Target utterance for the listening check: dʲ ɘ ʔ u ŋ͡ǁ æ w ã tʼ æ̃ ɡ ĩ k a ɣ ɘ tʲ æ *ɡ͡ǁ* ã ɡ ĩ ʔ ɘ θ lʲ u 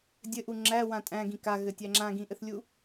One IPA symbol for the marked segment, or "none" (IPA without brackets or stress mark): ŋ͡ǁ